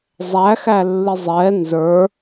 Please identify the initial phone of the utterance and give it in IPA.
zˤ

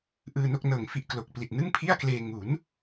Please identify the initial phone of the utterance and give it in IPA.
ʔ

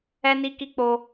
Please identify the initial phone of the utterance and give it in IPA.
ɛ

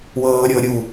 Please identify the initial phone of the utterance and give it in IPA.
w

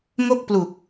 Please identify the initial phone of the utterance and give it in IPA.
ŋ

